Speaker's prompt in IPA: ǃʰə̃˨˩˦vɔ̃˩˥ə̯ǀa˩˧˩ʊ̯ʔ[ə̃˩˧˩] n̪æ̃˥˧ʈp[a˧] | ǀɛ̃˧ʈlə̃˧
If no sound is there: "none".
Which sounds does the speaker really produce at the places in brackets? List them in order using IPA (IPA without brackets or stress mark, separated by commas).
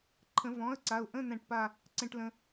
ə̃˧˥˧, a˥˧